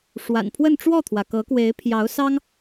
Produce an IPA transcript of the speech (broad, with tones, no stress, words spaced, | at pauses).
ʂwa̰˨˩npʰwə˥˧nʈ͡ʂwɔ˥˩t̪ʰwä˩ kɤ˧˥kwe˧˥ɪ̯pʰjɑ˧˥ʊ̯ sɑ˥ŋ